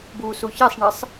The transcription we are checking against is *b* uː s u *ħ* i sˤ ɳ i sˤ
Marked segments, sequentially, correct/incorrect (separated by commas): correct, incorrect